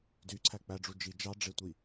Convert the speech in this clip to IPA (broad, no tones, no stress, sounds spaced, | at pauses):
d y ǀʰ æ k͡p æ ɖ͡ʐ u d͡ʒ i d͡ʒ ɑ ɖ͡ʐ e tʷ i